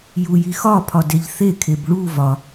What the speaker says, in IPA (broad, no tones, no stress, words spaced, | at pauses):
jujixɒ pʰɒdeʎθe kʰebɭu vɒ